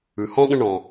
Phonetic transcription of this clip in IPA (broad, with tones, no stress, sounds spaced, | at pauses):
ʉ˨ h ɔ̃˦ ɠ ə̃˧ ɳ ɔ̃˨